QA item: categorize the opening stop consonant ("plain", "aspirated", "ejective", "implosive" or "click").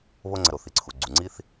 click